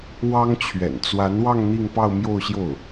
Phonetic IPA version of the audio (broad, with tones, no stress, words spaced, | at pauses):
wɑ˥ŋ t͡ɕʰɥɛ̰˨˩nt͡swa˧˥nwɑ˥˧ŋ n̪i˥˧ŋpɑ˥˧ʊ̯mjo˥˧ʊ̯ɕjo˥˩ʊ̯